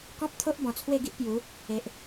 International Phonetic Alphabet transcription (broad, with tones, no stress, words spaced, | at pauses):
kɔ̃˦p̚t̪ʰo˦ʔbɔ̃˨˩ t͡sʰwe˥˧ɡi˦ʔpju˨˦ | e˨ʔ